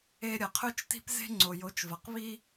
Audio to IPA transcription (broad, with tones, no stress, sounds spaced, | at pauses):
e˧ ɾʲ ɐ˨ qʰ ɵ˦ t͡ʃ t i̤˦ p z e̤˦ ŋ͡ǀ o˨ j o˨˦ t͡ʃ v ɐ˨ q β i˦